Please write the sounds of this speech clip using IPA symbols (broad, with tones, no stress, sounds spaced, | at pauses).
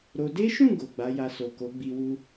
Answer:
ɾ o˧ d e˦ ʃ ũ˦˨ ɡ o˨ ɡ͡b a˨˦ j a˧ s o˨ k o˨˦ ɡ͡b i˧ w u˦